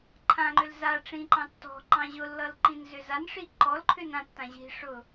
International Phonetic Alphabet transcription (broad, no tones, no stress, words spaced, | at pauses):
ǃʰãŋ͡ǃʏl za ʈ͡ʂĩǃɑ̃ tːɔ̤ ǃɑ̃ʑʊlːʌl ǃĩnzʏzanʂi ǃɔlǃʰʏn ãtːã ʑi̤ʂʊ